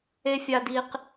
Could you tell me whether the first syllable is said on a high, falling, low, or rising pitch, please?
high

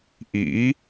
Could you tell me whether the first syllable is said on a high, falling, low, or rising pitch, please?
rising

